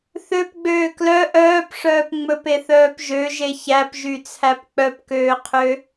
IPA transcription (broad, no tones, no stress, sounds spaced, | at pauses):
θ ø p ɡ͡b øː k l œ ʔ œː p ʂ œː p ŋ͡m ɵ p e θ œː p ʒ ø ʒ e ç æ p ʒ y t͡sʰ æ p k͡p œ p k øː qʰ ø